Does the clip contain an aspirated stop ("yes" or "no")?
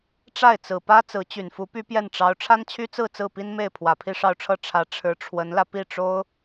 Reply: yes